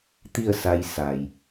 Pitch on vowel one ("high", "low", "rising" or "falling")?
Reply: falling